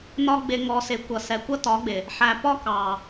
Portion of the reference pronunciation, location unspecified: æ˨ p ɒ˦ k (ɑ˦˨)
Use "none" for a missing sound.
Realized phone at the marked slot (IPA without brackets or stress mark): ɑ˨